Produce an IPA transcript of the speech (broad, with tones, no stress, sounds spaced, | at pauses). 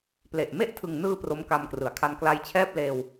p l e˨˩ ʔ m e˥˩ ʔ tʰ ɯ˨˩ ŋ n ɯː˧ p r o˦˥ m k a˧ m k r ɯ˩˦ a̯ kʰ a˧ n k l a˧ j t͡ɕʰ ɛː˥˩ p̚ l eː˧ w